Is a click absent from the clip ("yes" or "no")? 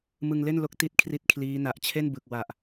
yes